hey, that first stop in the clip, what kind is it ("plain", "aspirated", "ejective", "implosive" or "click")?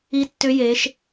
plain